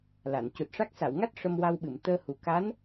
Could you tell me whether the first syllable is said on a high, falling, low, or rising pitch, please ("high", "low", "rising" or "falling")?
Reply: low